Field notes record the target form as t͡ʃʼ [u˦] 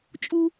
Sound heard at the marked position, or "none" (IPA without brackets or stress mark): u˦